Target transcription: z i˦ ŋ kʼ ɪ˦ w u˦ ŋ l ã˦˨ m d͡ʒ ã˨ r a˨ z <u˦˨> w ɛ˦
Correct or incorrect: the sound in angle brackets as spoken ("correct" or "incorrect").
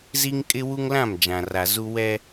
incorrect